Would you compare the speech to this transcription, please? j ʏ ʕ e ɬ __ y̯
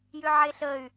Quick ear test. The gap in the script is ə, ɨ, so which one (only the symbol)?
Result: ə